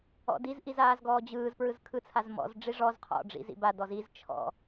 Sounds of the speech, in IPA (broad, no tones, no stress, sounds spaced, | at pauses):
ɔ̰ d i z ʔ i z aː z ɡ ɔː d͡ʑ ɯː z p ɹ ɯ z kʰ ɯ t͡sʰ a z m ɔ̰ z ɖ͡ʐ i ʐ ɔ z qʰ ɔ̰ ɖ͡ʐ ḭ z ḭ b a d ɔ z i z t͡ʃʰ ɔ̰